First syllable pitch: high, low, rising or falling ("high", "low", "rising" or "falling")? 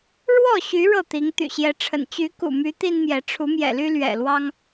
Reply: falling